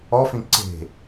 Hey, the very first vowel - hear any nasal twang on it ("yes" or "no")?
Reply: no